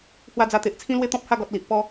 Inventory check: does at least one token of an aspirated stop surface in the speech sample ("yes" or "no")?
yes